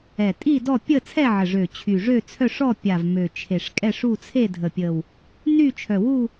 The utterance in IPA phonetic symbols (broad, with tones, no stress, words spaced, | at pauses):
ɛ˨˩tʼi˥˧ dɔ˥˧ pʲə˥˧ t͡sʰɛ˥˧ʕə˨˩ʐø˨˩ t͡ɕʰy˨˩ʐø˥˧t͡sʰœ˥˧ʂɔ˥˧ pʲa˨˩v mø˨˩ t͡ʃʰe˨˩ʂkʼɛ˥˧ʂu˥˧ t͡sʰe˥˧dʱə˨˩pʲə˨˩w | ny˥˧t͡ʃʰœ˨˩wu˥˧